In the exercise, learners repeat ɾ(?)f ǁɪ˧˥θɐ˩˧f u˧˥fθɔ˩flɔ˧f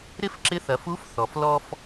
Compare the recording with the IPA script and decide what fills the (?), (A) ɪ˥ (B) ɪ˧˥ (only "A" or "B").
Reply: B